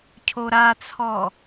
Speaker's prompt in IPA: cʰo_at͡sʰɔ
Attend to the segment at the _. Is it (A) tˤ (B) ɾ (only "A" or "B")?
B